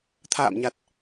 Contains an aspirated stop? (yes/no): yes